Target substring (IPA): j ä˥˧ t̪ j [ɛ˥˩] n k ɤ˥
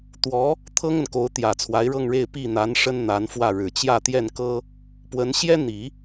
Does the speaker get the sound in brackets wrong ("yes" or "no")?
no